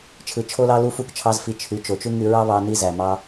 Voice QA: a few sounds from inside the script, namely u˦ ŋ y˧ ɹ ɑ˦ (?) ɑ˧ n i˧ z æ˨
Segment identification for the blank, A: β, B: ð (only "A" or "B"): A